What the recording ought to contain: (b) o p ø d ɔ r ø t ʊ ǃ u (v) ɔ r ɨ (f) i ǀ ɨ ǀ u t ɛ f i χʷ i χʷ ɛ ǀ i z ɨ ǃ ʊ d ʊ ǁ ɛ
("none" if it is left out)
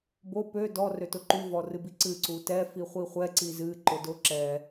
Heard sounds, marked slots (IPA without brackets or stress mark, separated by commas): b, v, b